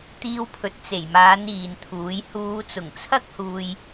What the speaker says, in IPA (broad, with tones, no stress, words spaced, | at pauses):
t̪iː˧wpʰɵ˨t̚ t͡se˨˩jmaː˨˧n iː˨nt̪ʰuː˨˥j huː˨˧t͡sʊ˨˩ŋt͡sʰɐ˥k̚huː˨j